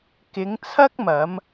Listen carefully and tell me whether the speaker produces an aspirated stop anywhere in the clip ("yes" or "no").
yes